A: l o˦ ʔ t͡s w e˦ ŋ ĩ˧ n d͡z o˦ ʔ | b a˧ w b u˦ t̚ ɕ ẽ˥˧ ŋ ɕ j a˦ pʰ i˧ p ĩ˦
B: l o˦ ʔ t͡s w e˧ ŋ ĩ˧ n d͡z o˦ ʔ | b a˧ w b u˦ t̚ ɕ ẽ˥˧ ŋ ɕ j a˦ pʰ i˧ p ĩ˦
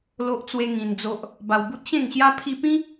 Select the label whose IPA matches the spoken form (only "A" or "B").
A